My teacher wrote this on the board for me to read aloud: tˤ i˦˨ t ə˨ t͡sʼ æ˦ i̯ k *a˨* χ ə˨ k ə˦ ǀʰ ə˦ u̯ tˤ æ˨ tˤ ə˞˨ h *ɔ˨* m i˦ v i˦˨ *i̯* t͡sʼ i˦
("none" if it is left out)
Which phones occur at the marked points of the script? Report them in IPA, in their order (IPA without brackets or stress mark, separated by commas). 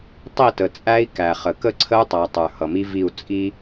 æ˨, ʌ˨, u̯